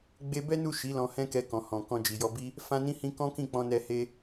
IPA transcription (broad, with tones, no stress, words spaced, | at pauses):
ɡ͡be˧bɛ˦nu˦˨ ʃi˨˦ lɔ̃˧hɛ̃˦kɛ˧kɔ̃˨ hɔ̃˨ kɔ̃˧d͡ʒi˨jɔ˧bi˦ | fã˧nĩ˧hĩ˧ kɔ̃˦kĩ˦˨k͡pɔ̃˧nɛ˧ he˦